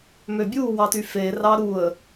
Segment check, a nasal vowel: absent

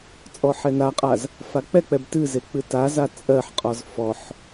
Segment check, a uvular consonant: present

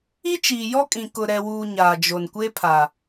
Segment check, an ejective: present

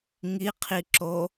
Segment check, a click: present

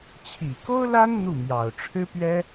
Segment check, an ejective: absent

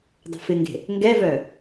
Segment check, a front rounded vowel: present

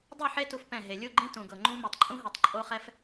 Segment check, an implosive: absent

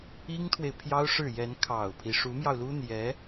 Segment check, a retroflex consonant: present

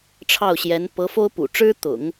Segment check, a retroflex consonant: present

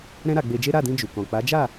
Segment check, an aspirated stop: absent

